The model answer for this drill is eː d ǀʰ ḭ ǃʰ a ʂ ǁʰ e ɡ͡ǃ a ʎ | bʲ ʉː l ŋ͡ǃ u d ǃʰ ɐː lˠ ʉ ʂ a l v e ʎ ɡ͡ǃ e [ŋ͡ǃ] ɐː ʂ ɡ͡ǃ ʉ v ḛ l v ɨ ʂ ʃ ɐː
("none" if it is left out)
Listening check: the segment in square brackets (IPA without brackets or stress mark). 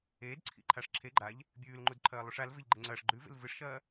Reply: ŋ͡ǀ